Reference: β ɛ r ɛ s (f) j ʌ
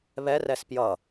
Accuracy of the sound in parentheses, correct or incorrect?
incorrect